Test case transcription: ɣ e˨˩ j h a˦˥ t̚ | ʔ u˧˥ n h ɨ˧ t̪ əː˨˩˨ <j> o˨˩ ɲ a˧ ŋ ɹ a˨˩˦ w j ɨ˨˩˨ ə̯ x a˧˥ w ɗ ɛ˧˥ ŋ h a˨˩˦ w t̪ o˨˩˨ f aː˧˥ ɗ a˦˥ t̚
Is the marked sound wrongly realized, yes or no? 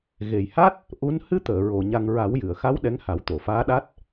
yes